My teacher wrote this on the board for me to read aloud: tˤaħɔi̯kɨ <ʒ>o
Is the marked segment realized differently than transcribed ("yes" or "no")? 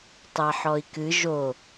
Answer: no